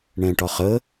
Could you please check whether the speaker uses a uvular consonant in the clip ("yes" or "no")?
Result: yes